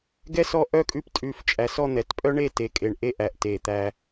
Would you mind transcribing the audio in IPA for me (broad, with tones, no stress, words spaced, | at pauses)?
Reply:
ɡɛ˥ sɔ˥ʔœ˥kʼʉ˥˧p tʼʉ˥˧f t͡ʃʼæ˧sɔ˥˧n̪ɛ˧˩t pʼœ˥ɳe˥˧ te˧kʼe˧˩ɳ ʔe˥˧ʔæ˧˩ʔ te˧˩t̪æ˧